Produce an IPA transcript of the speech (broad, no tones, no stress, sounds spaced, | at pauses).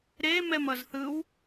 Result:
ɾ e m ɛ m ʌ z θ ɯ w